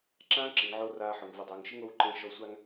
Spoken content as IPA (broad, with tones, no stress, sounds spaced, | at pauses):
ǁ ãː˦ ǁ ɪ˨ ŋ ʕ o˧ r aː˧ ħ ʊ˨ ŋ v ʊ˨ dˤ oː˨ ŋ ʃ ɪ˦ ŋ o˦ w ǃ ẽ˦ ʃ ɔ˧ sʷ a˦ ŋ